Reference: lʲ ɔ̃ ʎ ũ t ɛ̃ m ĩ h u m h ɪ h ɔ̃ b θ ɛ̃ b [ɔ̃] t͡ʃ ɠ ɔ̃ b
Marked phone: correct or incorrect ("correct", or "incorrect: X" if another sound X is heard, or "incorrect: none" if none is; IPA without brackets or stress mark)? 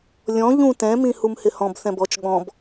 incorrect: ɔ